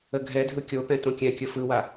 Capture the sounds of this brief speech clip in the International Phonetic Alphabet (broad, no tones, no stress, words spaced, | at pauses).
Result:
əɡʱɛdʱɯ kʲopɛ̃ tõkʲɛ̃kʲə fɯwa